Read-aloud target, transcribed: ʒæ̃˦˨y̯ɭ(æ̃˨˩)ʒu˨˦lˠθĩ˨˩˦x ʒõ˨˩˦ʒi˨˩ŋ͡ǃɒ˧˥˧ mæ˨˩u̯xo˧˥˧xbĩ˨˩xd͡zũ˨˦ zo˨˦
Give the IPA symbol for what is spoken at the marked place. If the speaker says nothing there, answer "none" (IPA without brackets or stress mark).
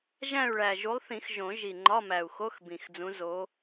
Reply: æ˨˩